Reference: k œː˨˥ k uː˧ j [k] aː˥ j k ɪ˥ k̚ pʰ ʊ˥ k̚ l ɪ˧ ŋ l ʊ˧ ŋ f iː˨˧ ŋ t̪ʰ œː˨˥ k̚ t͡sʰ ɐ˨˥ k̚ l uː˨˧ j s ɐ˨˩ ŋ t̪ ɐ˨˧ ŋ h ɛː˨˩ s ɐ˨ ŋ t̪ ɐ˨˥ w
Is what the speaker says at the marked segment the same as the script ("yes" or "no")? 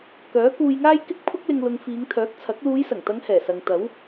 no